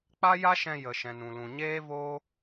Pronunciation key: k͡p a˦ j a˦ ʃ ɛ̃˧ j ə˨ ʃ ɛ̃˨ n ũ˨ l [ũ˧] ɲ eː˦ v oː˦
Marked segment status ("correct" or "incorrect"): incorrect